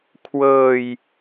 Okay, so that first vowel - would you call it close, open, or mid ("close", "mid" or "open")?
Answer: mid